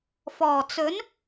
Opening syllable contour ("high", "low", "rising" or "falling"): low